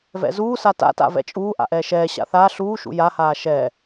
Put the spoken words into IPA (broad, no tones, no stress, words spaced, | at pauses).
vɛ̰zuːsa ta̰ta̰ vɛ̰t͡ʃʼuː ʔa̰ʔɛːʃɛːɕa̰ θa ɬuːʃṵ jahaː ʃɛ